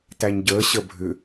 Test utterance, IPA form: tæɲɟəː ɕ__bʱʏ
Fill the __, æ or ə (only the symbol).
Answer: ə